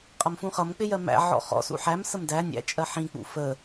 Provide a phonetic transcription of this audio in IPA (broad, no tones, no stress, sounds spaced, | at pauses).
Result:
qʼ ʌ m f ũ χ ʌ m k͡p ɪ j ɜ m æ̰ ʕ ɔ̰ χ ɔ̰ s ṵ ħ æ m s ə m d æ nʲ æ̰ t͡ʃʼ ɜ ħ ĩ k͡p ṵ f ə